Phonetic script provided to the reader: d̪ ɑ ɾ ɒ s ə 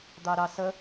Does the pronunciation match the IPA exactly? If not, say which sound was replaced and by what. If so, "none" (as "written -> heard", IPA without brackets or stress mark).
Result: ɒ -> ɑ